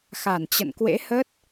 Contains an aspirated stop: no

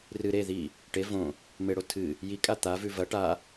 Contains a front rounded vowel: no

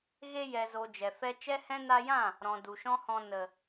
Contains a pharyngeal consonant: no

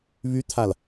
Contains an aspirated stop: yes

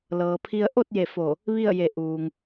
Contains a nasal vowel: no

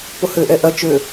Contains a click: no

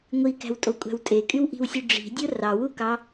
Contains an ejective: yes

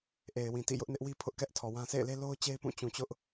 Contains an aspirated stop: yes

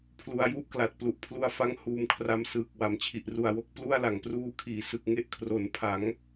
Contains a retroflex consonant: no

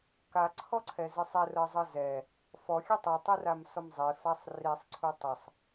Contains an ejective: no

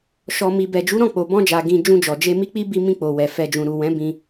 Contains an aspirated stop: no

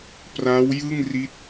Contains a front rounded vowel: no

